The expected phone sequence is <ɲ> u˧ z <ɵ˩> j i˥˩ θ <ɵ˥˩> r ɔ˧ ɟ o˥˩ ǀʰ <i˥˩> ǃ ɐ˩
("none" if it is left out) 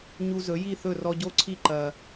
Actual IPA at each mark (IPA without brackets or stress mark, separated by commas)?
ɲ, ɵ˩˥, ɵ˥˩, i˥˩